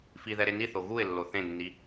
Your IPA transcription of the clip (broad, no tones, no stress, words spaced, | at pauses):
fiðɛ ɾeniθo ɣuɪ̯lːo θẽnːi